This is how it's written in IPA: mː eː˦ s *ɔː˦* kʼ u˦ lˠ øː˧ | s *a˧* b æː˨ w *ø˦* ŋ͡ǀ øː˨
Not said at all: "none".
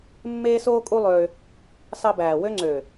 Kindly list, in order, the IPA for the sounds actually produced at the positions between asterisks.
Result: oː˦, ɑ˧, ø˦

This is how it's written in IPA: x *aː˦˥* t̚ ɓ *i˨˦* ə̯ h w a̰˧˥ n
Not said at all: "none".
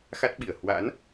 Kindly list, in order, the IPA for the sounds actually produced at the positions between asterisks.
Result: a˦˥, i˧˩

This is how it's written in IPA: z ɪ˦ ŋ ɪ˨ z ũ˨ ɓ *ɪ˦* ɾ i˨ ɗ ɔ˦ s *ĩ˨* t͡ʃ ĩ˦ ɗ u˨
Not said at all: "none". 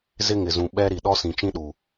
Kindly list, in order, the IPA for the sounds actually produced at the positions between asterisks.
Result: ɛ˦, ĩ˨

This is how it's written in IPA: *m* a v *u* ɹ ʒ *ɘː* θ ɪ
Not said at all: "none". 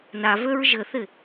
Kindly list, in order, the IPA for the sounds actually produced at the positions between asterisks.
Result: n, ø, ɘ

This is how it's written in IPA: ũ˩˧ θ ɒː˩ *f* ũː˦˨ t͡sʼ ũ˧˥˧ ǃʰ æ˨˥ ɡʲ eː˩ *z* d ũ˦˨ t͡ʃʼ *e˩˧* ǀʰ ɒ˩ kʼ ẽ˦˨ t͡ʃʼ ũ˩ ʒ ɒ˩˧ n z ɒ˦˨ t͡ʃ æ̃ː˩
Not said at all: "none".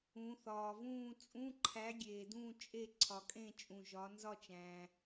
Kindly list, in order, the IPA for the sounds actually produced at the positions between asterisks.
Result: v, none, e˦˨

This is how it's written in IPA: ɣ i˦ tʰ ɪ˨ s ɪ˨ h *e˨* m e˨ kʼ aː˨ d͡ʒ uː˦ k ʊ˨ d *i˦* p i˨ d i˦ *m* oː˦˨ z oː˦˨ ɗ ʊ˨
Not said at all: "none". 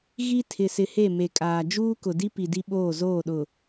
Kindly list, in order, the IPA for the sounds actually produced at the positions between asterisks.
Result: e˦˨, i˦, ɓ

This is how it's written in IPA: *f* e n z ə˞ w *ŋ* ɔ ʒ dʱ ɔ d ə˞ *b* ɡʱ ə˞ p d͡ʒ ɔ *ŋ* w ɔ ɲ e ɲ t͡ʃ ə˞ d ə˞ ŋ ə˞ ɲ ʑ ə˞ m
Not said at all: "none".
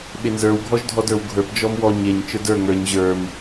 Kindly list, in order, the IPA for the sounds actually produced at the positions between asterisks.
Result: ɓ, ɡʱ, w, m

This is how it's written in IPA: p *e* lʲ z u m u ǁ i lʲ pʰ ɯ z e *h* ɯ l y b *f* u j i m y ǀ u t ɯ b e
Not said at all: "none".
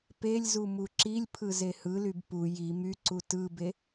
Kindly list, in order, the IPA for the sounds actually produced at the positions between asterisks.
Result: e, h, p

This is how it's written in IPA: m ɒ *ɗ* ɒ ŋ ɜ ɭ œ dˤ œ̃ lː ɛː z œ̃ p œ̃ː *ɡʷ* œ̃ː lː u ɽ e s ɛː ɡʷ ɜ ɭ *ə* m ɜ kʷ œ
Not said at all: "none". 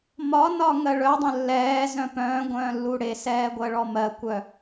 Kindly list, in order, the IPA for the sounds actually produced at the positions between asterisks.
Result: n, ɡʷ, ɔ

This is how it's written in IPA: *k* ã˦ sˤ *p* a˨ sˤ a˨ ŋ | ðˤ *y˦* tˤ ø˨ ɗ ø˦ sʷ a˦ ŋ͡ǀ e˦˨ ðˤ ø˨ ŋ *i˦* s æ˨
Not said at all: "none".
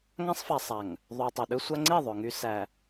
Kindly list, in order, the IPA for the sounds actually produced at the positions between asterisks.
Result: ŋ, f, y˨, y˦

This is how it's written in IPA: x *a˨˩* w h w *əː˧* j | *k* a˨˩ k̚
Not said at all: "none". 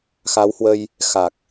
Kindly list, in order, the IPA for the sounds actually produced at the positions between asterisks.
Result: a˨˦, ə˧, x

